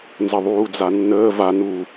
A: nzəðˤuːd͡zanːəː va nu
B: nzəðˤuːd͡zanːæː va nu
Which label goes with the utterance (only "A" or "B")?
A